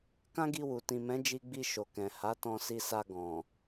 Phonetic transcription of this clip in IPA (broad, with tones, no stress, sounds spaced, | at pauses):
k ã˦ ɡ i˧ w u˨ t ĩ˨ m ɛ̃˨˦ d͡ʒ i˧ ɡ͡b i˧ ʃ o˨ k ɛ̃˨ h a˨˦ t ɔ̃˧ s i˧ s a˧ ɡ ɔ̃˨